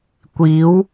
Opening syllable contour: rising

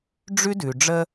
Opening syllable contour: high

